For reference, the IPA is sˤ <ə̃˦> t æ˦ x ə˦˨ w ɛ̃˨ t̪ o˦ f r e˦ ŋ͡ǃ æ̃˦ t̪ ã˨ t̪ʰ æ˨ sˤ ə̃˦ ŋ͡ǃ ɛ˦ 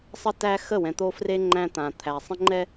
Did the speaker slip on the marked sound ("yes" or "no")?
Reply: yes